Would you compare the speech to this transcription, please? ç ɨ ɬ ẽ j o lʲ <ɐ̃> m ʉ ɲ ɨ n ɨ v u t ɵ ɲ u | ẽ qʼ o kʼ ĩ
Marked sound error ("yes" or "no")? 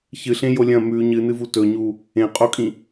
no